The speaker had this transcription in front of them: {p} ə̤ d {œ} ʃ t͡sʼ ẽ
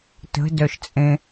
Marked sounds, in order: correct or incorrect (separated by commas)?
incorrect, correct